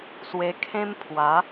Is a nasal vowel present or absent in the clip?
present